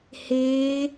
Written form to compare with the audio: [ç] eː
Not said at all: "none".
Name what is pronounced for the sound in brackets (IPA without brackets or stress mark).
h